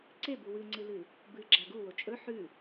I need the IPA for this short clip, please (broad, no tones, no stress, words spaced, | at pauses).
ǀebu wɨŋ͡ǀɨlɨ | bɨɡ͡ǁa ɡuwo t͡ʃʼɵ ħʉ